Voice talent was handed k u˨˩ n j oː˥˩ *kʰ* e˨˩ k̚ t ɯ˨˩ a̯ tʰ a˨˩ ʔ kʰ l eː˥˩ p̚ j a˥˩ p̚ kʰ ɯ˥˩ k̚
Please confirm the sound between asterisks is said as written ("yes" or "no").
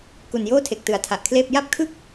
no